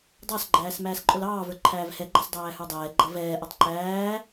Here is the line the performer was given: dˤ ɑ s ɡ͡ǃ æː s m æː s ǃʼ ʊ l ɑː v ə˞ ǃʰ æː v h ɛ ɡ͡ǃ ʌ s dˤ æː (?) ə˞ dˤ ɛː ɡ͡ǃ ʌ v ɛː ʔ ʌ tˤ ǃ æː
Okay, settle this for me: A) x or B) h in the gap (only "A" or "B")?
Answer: B